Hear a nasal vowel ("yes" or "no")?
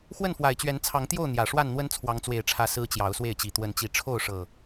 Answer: no